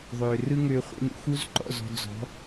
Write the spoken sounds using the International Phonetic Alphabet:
ðˤø˨ rɯ˦ŋø˧χʷḭ˧n ṵ˧xu˦zǃɔ̰˦˨z ɔ̤˧d͡zɔ̤˨˦

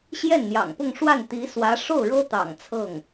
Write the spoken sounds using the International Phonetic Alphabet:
ɕjɛ˥˩nn̪jɑ̰˨˩ŋpʊ˥˧ŋʂwa˥˩n t̪i˧˥swä˧˥ʂo˥˩ʊ̯ɻɤ˥ t̪ɑ̰˨˩ŋt͡sʰɤ˥˩ŋ

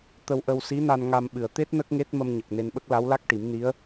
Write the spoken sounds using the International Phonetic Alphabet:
t̪ə˧wʔə˧w si˧˥na˧n ŋa˧m ɓɨ˨˩ə̯t̪e˦˥t̚ nə˦˥k̚ŋe˦˥t̚ mə˧mɲə˨˩k̚ ne˧nɓə˦˥k̚ la˧˥wla˦˥k̚ʈi˨˩˦m ni˧˥ə̯

